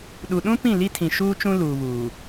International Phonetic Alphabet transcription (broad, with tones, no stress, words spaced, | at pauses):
ɗu˨ɗũ˦ pĩ˦˨li˦tʰĩ˨ ʃuː˦t͡ʃũ˦ luː˨βuː˨